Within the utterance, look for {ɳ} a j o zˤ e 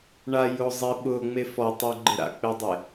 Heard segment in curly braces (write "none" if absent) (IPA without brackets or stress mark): ɳ